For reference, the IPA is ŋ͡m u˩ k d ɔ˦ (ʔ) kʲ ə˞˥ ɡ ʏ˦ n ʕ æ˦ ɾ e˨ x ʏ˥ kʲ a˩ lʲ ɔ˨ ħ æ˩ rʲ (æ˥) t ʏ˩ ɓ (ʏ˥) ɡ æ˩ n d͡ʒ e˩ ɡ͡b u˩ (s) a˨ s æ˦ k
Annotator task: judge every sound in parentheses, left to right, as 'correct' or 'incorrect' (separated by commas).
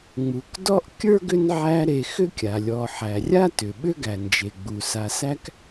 correct, incorrect, correct, correct